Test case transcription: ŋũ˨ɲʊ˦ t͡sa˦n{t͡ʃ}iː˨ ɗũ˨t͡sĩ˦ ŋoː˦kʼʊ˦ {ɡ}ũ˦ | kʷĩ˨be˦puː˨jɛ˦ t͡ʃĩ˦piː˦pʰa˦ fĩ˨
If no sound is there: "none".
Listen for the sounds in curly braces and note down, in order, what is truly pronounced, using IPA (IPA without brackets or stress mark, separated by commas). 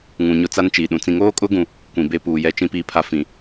t͡ʃ, ɡ